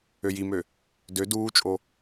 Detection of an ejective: present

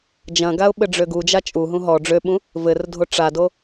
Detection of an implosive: present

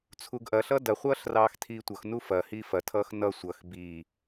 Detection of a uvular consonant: present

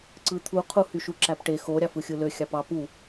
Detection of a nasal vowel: absent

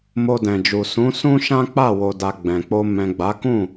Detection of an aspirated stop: absent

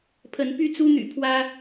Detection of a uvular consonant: absent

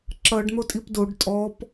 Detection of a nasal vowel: absent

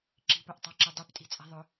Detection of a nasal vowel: absent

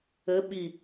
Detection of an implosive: present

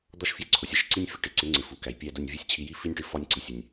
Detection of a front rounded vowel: absent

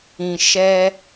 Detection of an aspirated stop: absent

